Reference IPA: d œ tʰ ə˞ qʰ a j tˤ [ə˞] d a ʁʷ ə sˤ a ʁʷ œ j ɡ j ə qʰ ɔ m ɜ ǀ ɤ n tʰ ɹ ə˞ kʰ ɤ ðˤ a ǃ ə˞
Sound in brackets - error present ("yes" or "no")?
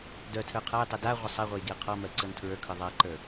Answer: yes